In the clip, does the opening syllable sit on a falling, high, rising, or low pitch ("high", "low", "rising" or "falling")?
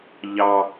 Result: low